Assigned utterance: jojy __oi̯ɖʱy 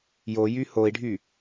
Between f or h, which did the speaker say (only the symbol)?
h